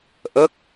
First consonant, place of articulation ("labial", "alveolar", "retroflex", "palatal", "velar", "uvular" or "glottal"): glottal